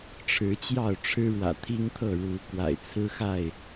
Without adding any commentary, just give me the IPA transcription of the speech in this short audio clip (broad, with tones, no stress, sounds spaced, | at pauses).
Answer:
ʈ͡ʂʰ ɻ̩˨˦ t͡ɕ j ɑ˥˨ ʊ̯ ʈ͡ʂʰ ɻ̩˦ ɻ w ä̰˨˩ t̪ʰ i˦ ŋ t̪ʰ ɤ˥˨ ɻ u˨˦ k w a̰˨˩ ɪ̯ t͡sʰ ɹ̩˦ x a˥˨ ɪ̯